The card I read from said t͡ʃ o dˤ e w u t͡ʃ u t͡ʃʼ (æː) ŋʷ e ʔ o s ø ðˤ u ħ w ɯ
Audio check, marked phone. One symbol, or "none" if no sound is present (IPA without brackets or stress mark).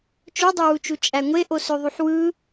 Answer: æ